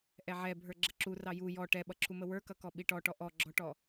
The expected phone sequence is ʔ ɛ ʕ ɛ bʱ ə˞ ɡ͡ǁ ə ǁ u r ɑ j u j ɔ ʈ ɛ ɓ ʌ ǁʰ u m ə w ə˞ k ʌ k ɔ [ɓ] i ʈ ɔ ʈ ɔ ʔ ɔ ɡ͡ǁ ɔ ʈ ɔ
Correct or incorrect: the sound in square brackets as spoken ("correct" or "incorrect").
correct